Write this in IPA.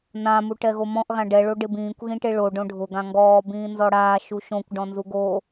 nã muʈɛɣomɔ̃ʔ ɣãɖɛ ɭoɖɪbĩːkʷ ɣĩʈeɭo ɖõɖʱʊ ɡãŋɡɔː bĩːnzɔɽaː ʃuʃõkʷ ɖɔ̃nzuɡo

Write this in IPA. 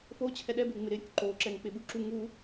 fot͡ɕʰɛ ɗɛbe ŋ͡mɪɾɪɾʲuk ǃoǁɛŋ k͡pɪɓuǁu ŋu

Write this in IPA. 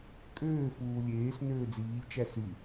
kʼøːfuː lʲeːs nøːd͡ziːʎt͡ʃæ sy

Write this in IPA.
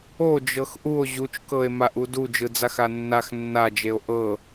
o d͡ʒɤxʔuo̯ ʑut͡ʃkɤe̯maʔu dud͡ʒɯd͡zax anːax nːad͡ʒeo̯ ʔɤ

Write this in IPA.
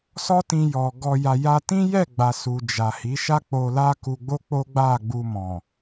sɔ˦tĩ˧ jɔ˨ ɡɔ˧ja˧ ja˧tĩ˦jɛ˦˨ɡ͡ba˨ su˨d͡ʒa˨ hi˨˦ʃa˦ k͡po˧la˦ku˧ɡ͡bo˦ k͡po˦ɡ͡ba˦˨ɡ͡bu˧mɔ̃˨

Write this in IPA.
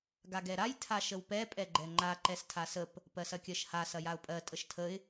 ɡaɡɛɾaj tʰaʃəwpɛ pʼɛɡ͡ǃɛŋ͡ǃa ǃɛstʰasəp | pɜsɐkʲɜʃha sɐjaʊ̯pʼɜ tʼəʃtʰəɪ̯

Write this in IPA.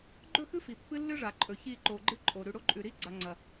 ɡ͡ǃɵ˦˨xɨ˦ fi˨ pːɨ˦lːɨ˦ʐa˨ǃʼɵ˨ çi˦˨ǃo˨ɡ͡ǃɨ˦ǃʼo˨ ɾʉ˨ɽo˦ǃʼʉ˨ɾi˦ ɡ͡ǀa˨ŋ͡ǀɐ˨

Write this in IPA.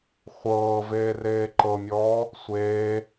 χʷɤːveː reːǃɤmʲɔː | sʷeː

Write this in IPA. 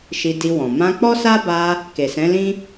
ʃi˧di˧wɔ̃˨ mã˧k͡pɔ˦ sa˦ba˧ | ke˨sɛ̃˨˦lĩ˦

